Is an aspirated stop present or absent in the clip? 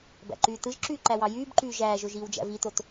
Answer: absent